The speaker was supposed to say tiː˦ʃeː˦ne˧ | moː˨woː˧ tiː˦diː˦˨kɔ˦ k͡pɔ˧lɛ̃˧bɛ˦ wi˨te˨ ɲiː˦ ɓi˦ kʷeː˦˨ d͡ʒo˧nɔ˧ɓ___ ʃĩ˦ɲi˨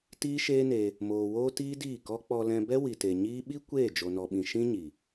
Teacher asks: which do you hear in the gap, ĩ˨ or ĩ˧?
ĩ˧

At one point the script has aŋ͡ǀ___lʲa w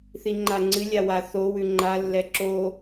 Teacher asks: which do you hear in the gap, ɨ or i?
ɨ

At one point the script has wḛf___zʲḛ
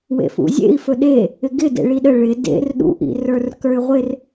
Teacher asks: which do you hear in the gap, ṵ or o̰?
ṵ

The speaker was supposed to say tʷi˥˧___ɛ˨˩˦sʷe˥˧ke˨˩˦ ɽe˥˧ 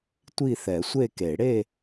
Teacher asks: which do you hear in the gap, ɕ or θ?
θ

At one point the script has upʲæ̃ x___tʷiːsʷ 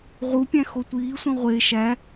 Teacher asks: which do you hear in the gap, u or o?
o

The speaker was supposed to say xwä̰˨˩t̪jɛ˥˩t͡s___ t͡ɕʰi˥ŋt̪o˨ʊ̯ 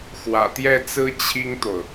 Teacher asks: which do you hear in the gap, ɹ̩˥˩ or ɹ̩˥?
ɹ̩˥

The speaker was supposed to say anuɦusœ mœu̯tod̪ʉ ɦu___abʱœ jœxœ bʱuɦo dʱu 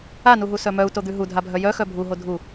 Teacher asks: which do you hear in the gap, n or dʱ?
dʱ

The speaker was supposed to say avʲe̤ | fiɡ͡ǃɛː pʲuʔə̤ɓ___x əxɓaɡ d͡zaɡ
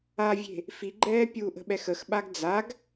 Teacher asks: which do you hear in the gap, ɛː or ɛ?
ɛ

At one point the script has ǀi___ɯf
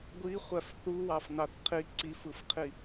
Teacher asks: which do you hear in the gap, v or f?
f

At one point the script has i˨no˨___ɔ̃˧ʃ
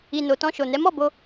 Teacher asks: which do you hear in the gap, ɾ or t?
t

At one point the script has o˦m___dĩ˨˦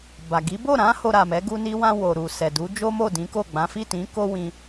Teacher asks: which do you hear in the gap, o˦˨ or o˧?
o˦˨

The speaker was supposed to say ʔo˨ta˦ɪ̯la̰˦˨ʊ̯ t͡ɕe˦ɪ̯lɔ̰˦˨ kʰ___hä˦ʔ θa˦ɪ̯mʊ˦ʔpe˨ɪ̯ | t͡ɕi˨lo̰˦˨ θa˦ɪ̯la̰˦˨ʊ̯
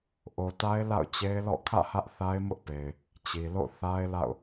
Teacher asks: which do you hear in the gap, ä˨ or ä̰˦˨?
ä̰˦˨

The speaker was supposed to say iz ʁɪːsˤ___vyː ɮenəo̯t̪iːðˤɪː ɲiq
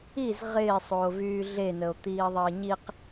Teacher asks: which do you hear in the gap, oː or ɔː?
oː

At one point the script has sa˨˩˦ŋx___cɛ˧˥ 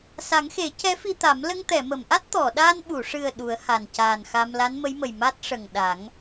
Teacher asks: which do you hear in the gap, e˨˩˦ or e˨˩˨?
e˨˩˦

